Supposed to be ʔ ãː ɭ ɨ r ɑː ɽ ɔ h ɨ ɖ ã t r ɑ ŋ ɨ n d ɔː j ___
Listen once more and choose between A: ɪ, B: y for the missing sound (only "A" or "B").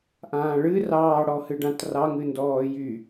B